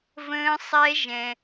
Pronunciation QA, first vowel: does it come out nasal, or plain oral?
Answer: nasal